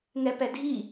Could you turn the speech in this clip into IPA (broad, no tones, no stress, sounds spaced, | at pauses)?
ŋ ɛ p ɛ dʱ i